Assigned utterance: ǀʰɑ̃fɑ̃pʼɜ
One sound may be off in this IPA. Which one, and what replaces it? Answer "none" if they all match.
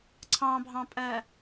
f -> bʱ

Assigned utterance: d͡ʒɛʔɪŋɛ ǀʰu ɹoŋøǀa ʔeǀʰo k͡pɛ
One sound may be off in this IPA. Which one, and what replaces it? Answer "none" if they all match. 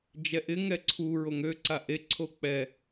none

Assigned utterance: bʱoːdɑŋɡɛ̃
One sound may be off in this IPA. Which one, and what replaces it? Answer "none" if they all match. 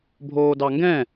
none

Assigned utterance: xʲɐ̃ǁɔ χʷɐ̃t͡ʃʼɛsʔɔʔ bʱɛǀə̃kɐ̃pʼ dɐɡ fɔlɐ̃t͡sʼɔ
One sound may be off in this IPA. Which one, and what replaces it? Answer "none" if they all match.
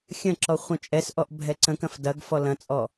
pʼ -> f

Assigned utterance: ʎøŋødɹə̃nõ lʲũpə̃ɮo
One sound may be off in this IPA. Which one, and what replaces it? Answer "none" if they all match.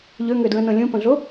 none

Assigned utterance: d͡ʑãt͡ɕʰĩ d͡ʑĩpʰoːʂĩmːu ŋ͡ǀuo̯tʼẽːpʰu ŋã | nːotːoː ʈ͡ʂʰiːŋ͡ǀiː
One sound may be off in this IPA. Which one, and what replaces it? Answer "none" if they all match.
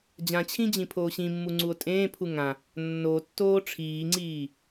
ʂ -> ɕ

